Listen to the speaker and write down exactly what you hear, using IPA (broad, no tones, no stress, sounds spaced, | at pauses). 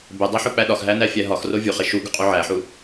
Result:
b e dˤ æ ħ o k͡p æ ɗ ɒ x ɦ æ n æ fʲ æ ɦ ɒ x r o vʲ u χ e ʃ u ɡ u qʼ u ʕ æ ħ u